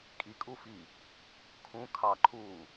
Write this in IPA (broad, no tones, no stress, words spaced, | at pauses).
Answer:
kʼikʼufi | kʰũ kʰɑǃʰuː